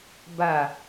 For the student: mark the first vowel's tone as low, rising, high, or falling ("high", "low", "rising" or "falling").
low